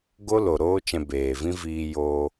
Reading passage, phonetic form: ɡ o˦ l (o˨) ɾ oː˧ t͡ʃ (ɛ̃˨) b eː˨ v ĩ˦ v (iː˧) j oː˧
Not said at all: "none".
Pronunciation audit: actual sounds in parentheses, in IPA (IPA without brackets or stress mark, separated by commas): o˨, ɛ̃˨, iː˧